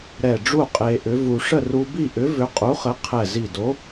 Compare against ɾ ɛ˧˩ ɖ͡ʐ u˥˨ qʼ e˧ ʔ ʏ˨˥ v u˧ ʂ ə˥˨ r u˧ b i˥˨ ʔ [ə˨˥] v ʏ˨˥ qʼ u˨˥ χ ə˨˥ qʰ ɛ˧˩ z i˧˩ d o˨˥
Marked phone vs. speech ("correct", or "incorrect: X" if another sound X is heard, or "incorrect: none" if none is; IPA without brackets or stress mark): incorrect: ʏ˨˥